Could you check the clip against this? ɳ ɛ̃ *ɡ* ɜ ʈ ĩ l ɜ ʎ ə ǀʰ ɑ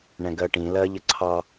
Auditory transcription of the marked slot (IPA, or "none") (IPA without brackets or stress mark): ɡ